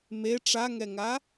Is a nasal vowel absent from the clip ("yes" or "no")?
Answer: yes